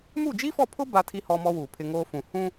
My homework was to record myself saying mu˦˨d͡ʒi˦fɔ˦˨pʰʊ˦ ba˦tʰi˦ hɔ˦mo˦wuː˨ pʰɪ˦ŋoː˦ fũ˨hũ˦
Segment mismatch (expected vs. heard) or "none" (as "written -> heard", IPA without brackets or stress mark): o˦ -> ɔ˦